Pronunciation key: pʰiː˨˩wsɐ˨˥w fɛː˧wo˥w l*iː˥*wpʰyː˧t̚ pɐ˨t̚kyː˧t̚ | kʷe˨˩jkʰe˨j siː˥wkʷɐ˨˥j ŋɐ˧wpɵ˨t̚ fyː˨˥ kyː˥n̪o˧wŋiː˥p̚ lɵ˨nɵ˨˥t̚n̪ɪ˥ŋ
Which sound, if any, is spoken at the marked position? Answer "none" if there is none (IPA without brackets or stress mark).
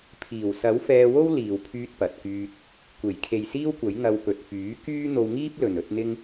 iː˨